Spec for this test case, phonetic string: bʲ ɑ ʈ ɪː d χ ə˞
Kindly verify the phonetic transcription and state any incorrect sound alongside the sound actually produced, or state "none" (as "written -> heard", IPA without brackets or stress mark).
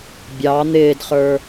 ʈ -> n̪